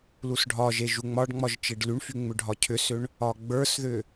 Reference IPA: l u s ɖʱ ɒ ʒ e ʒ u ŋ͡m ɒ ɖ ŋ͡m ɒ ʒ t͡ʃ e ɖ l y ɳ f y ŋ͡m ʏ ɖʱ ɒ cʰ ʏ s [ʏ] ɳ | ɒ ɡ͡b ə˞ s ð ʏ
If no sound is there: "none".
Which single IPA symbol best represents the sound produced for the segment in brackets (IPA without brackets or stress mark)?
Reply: ʏ